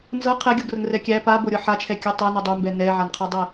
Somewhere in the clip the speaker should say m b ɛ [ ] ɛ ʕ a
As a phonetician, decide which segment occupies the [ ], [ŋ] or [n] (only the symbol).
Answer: n